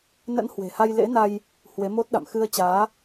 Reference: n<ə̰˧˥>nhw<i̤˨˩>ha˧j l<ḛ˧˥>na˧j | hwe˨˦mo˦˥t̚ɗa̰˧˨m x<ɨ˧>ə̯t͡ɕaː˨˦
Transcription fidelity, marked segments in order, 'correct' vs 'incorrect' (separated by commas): correct, incorrect, correct, correct